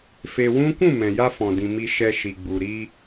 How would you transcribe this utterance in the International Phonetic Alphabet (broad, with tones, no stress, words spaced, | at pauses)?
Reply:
fe˧wũ˦ kũ˦˨mɛ̃˨ ja˧fɔ̃˨dĩ˨ mi˧ʃɛ˧ ʃi˨ɡ͡bu˨ ɾi˧